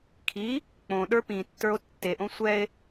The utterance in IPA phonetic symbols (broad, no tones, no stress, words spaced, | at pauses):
kʰi | k͡põ ɗə˞pĩtːə˞o̯ tːeʔõ sʷɛe̯